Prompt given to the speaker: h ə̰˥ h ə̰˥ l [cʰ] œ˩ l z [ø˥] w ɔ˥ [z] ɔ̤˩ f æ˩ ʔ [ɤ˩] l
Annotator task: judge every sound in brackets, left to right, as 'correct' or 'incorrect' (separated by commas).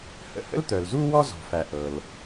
incorrect, incorrect, correct, correct